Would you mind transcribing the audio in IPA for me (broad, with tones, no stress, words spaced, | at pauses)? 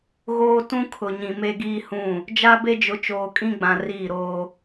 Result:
ɣoː˦ tũ˦kʰʊ˨ɲĩ˨ me˦ɡiː˦hũ˦˨ | d͡ʒa˦be˦d͡ʒʊ˨˦ t͡ʃoː˨kʼĩ˦ ɡ͡bã˨ riː˦˨ɾoː˦